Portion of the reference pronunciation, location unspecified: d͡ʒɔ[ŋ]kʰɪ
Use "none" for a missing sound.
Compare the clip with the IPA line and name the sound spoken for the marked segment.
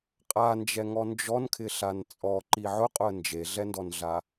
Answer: n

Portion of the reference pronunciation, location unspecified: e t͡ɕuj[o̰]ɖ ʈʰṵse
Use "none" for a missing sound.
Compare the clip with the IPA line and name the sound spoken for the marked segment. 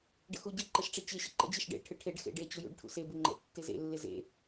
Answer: ṵ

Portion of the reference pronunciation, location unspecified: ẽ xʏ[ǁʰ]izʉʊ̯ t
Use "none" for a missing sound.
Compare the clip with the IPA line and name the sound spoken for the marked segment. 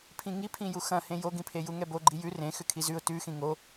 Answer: kʰ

